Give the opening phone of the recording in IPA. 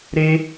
ɾ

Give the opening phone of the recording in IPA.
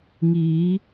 ŋ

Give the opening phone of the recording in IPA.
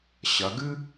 ɕ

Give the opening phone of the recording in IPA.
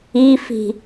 i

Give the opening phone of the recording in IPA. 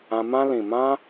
ã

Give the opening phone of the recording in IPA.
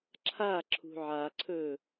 ǁʰ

